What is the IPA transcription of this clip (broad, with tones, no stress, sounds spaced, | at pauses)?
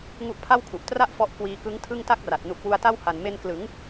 ŋ u˦˥ ʔ pʰ a˥˩ w kʰ u˨˩ ʔ t r a˥˩ ʔ f ɔ˦˥ ʔ k w iː˧ k ɯ˦˥ ŋ tʰ ɯ˥˩ ŋ t a˥˩ k̚ r a˨˩ t̚ n u˨˩ k̚ w u˧ a̯ t a˥˩ w h a˨˩ n m e˧ n k l ɯ˩˦ ŋ